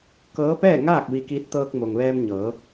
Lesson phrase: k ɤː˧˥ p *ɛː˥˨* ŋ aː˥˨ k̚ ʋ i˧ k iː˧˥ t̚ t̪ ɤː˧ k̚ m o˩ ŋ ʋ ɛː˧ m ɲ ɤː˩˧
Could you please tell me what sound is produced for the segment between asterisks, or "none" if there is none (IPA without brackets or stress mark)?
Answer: ɛː˥˨